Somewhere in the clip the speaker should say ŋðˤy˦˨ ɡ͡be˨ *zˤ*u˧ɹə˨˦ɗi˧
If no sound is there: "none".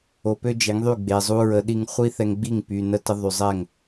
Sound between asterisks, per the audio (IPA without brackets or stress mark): zˤ